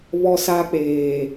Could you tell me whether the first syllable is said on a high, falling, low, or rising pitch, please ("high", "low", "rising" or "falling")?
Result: high